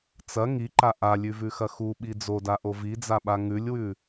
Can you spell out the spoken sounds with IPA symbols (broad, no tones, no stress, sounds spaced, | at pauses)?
t͡s ɐ ŋ i ǃ a ʔ a lʲ ʉ v ʉ x ɐ x u ɓ i d͡z o d a ʔ o v i d͡z a ɓ a ŋ ʉ lʲ w ʉ